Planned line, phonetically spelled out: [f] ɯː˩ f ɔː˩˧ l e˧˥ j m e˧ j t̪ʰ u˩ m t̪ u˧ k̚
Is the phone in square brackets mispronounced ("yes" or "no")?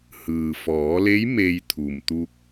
yes